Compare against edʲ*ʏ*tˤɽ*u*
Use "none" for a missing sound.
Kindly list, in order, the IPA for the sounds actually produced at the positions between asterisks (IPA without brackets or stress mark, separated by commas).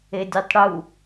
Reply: u, u